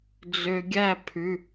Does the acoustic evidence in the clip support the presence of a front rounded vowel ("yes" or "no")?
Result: yes